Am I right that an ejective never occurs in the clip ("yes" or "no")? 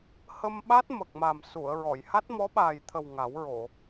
yes